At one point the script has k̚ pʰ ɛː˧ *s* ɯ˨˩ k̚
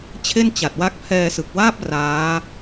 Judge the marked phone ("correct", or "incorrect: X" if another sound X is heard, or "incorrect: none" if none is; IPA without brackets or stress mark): correct